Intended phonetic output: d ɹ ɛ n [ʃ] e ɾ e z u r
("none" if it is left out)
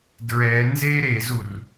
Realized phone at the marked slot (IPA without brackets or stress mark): z